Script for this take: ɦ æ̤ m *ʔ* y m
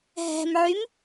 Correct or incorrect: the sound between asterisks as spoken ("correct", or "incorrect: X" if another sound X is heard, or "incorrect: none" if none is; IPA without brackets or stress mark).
incorrect: ʕ